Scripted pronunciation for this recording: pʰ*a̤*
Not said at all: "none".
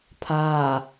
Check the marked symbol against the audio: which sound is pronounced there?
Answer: a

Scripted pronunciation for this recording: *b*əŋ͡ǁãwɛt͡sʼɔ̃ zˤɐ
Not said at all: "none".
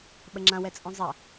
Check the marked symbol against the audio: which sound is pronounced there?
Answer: ɓ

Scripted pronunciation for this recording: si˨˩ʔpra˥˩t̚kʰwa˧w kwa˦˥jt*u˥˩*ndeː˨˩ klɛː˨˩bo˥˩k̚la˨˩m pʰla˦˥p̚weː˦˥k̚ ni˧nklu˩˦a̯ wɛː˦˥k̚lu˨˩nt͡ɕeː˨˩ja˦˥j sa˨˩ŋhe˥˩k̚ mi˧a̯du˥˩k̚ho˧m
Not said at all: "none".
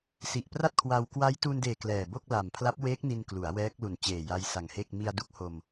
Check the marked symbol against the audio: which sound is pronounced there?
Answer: u˧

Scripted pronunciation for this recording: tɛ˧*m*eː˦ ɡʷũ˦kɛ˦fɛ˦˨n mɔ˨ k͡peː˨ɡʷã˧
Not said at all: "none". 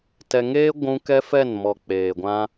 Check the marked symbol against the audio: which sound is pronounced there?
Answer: ŋ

